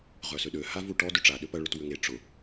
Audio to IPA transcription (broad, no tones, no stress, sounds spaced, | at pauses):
ʁ œ s ʏ ɗ ø h a v u ʈ ɔ d ʏ ʈ͡ʂ a ɗ ʏ p ɐ ɭ ʏ t w ʏ ŋ e ʈ͡ʂ ʊ